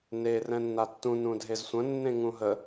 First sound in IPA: n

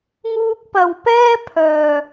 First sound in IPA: ŋ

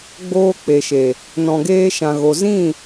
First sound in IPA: ɡ͡b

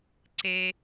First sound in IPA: ǀ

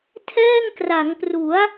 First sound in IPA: tʰ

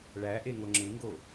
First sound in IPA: ɭ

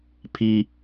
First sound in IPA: pʰ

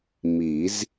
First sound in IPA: m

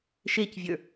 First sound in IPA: ʃ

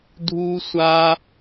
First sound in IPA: dʱ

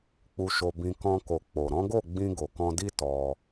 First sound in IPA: k͡p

